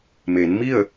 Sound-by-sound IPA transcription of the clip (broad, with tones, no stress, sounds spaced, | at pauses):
m e˩˧ n m i˥˨ ə̯